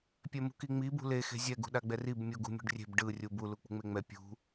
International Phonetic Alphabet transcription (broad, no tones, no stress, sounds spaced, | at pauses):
pʲ ɛ m ṳ k i ŋ͡m i b ṳ l e x e̤ zʲ ɛ ɡ ṳ ɗ a ɡ͡b ɛ r i b mʲ u ɡ ṳ mʲ ṳ ɖ rʲ e̤ b ɖ ɯ rʲ u b u l u k͡p ṳ ŋ͡m e ŋ͡m ɛ pʲ ṳ